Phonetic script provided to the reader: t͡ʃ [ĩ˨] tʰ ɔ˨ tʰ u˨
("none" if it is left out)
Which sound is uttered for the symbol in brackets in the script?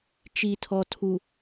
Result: i˨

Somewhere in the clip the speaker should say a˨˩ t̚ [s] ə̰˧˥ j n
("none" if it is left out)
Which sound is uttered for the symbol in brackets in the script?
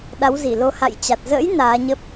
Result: z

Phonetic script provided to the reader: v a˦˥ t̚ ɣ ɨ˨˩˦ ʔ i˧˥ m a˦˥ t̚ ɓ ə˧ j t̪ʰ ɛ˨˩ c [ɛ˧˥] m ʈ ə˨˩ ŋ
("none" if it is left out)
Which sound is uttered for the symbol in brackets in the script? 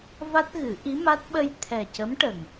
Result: ə˧˥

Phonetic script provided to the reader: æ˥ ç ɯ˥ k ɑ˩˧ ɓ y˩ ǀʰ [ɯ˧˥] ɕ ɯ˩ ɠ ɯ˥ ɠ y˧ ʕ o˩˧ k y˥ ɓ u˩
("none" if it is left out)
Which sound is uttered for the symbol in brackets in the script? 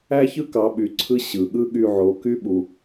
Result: ɯ˧˥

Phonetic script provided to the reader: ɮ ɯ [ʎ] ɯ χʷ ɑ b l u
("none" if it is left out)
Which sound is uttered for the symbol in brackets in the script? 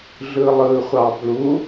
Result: lˠ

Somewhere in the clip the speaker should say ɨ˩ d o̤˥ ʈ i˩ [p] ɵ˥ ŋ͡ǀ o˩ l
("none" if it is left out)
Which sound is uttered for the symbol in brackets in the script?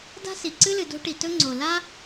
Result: t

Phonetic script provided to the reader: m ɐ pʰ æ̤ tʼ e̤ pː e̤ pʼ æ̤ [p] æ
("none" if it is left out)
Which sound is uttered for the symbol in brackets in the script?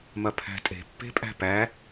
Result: p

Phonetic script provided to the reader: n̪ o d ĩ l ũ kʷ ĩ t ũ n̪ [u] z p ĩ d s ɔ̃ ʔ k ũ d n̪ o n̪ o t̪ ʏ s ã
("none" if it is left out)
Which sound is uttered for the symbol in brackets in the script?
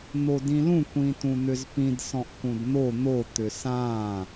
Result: ʏ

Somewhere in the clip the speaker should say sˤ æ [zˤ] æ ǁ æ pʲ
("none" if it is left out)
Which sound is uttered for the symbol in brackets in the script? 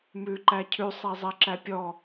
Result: zˤ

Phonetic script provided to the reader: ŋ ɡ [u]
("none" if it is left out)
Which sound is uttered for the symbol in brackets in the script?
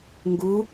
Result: u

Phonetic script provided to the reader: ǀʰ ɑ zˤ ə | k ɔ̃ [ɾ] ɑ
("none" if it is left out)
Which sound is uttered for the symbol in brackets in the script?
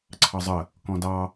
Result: d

